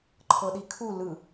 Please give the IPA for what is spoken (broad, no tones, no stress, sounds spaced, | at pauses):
ǃʰ ɤ ɗ i kʰ u l ɯ